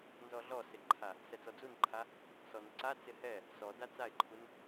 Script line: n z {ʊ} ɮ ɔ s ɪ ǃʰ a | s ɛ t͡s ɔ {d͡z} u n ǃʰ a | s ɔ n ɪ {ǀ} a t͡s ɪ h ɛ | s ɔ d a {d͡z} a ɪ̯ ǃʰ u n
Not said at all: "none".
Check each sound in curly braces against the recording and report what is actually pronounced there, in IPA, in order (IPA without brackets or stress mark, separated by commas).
ɔ, d͡z, ǀ, t͡s